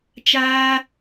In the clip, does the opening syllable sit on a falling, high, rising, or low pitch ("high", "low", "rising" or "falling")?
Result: high